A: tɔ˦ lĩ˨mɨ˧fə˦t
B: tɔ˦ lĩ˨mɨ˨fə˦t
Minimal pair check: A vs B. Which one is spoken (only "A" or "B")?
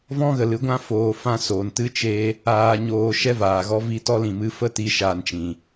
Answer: A